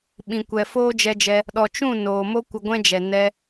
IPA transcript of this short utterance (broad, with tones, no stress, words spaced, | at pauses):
ɓĩ˨kʷɛ˨ foː˦d͡ʒɛ˧d͡ʒɛ˧ | ɗɔ˨t͡ʃũ˦˨ noː˨ mo˦ kʷə˧ ɡʷɛ̃˦d͡ʒɛ˨ nɛ˧